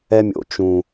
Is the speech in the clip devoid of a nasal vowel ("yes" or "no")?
no